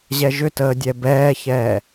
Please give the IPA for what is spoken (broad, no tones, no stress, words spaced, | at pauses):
ʑɛʒʏtəː dʲɛbɛːçɛː